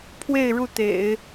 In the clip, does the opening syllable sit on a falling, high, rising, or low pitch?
falling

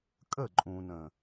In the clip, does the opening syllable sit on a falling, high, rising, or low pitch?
falling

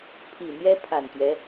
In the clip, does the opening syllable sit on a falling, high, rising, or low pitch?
low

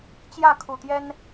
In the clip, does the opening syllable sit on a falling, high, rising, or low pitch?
falling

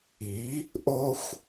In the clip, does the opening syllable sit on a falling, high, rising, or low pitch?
rising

